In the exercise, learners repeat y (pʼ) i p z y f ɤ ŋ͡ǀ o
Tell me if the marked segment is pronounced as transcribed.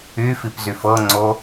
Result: no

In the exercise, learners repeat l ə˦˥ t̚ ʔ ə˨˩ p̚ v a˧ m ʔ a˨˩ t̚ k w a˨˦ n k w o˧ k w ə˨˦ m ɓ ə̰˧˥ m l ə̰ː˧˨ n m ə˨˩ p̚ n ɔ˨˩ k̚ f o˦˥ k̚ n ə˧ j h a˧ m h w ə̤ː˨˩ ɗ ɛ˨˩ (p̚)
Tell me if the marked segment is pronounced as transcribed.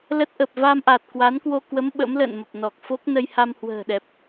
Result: yes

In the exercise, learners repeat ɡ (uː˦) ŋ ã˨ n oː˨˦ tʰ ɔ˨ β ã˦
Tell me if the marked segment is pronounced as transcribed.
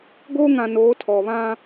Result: no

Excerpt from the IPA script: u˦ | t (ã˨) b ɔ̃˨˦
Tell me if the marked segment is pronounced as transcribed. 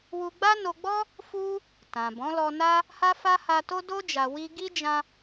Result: yes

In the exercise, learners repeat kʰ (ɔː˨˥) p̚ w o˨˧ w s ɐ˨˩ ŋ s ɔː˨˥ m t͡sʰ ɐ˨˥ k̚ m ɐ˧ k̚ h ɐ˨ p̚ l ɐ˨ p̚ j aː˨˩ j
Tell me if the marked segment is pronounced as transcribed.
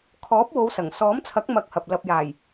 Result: yes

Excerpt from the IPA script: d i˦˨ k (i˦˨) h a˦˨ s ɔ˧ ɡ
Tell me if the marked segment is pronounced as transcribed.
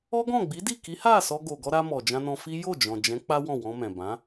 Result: no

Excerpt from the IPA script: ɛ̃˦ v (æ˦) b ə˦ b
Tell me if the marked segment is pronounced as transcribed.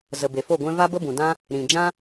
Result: no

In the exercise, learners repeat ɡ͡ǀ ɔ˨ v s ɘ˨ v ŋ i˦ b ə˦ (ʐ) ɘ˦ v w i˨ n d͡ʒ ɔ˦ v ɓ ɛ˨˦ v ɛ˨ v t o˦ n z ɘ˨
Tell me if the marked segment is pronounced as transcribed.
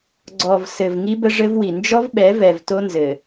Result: yes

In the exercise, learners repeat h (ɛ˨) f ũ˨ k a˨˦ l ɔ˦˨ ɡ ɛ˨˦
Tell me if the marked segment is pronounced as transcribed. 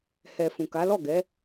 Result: yes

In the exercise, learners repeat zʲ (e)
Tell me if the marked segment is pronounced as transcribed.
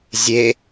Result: yes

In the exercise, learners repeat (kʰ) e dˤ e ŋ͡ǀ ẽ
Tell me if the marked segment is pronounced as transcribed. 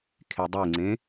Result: yes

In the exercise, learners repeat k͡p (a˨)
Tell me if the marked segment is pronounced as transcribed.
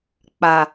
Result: yes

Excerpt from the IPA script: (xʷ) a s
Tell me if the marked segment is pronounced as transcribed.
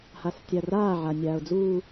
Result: no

